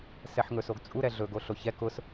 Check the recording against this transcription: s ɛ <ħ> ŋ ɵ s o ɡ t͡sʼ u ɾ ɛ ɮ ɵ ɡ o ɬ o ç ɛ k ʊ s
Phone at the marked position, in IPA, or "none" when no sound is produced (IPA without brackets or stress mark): ħ